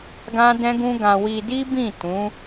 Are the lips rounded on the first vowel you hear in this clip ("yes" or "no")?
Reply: no